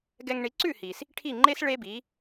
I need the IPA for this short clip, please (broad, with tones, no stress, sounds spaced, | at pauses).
ɡ ɛ˧ ŋ ɳ i˩˥ ǀ ʉ˥˩ h i˩ s | ʈʰ i˥˩ ŋ͡ǃ e˥ s ɭ e˥ b i˩˥